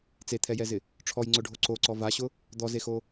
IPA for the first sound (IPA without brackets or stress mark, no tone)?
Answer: t͡s